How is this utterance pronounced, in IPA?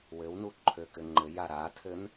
w ɘ w n u ǃʰ ø k ɘ ŋ͡ǃ ɘ j a ɾ a tʰ ɘ n

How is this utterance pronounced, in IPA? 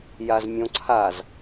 j a z mʲ õ ǀʰ a z

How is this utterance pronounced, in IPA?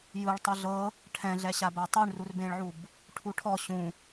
j ɯ ɭ tˤ ɯ ɮ ɤ | ʈʰ ɛ̃ ɮ ɛ ɕ a b a tˤ u ɳ r u r b ẽ ɭ ʕ u b | ʈʰ u ʈʰ ɔ ɕ ũ

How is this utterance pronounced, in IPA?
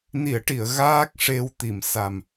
n i˨˩˨ ə̯ ʈ i˨˩˨ ə̯ ɣ aː˦˥ k̚ ʂ e˧ w t̪ i˨˩˨ m s a˨˩ m

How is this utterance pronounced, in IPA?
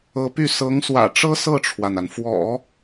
ɤ˧˥ p y˥˩ s ɤ˧˥ ŋ s w ä̰˨˩ ʈ͡ʂ ɤ˥ s ɤ˥˩ ʈ͡ʂʰ w a˩ n a˩ n f w ɔ̰˨˩˦

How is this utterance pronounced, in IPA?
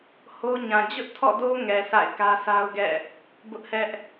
h o˦ ɲ ã˨ d͡ʑ ʊ˦ ʔ tʰ ɔ̰˦˨ d o˦ ŋ ɛ˨ sʰ a̰˦˨ ɪ̯ k ä˦ sʰ a˦ ʊ̯ ɡ ɛ̰˦˨ | b ʊ˦ ʔ h ɛ˦ ʔ

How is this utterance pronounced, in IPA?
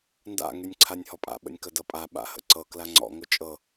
n d a̰ ŋ y nʲ ǀʰ a nʲ h ɔ pʼ a̰ ɓ ə̰ nʲ k ə d ɤ pʼ a ɓ a̰ h ə̰ ǀ ɤ k l a ŋ͡ǀ ɔ̰ ŋ ʊ t͡ʃʼ ɤ

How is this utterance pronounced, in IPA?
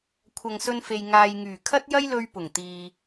kʷʰ ɐ˨ ŋ s ɵ˧ n f e˨ j ŋ aː˨ j ŋ yː˨˩ kʰ ɐ˥ t̚ j ɐ˥ j l ɵ˧ ɥ p ʊ˨˩ ŋ t̪ iː˨

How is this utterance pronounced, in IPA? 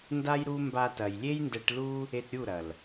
n d a˦ j ɾ u˦ m b a˧ t ɐ˨ j lʲ e˦ j n d ɛ˧ ʈ l u˦ | e˧ t ɾʲ u˦˨ ɾ ɐ˨ l

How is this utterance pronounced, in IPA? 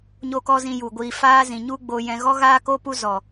ɲ o˦ k ɔ˦ z ĩ˧ j u˨ ɡʷ iː˨ f aː˦ z ĩ˨ ɲ u˦ ɡ͡b o˧ j ɛ̃˧ ɣ ɔ˦ ɣ aː˦ k o˦ p u˦ z ɔ˨

